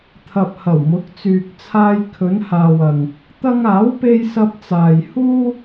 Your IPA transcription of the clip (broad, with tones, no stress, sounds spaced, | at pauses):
t̪ʰ ɐ˨ p̚ h ɐ˨˩ w m ʊ˨˥ k̚ t͡s yː˨ k̚ t͡sʰ aː˧ j kʰ ɵ˨˧ n h aː˨ w ɐ˨ ŋ | t̪ ɐ˧ ŋ aː˨˥ w p e˧ j s ɐ˧ p̚ t͡s aː˨ j h uː˥